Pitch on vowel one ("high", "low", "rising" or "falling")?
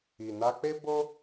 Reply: low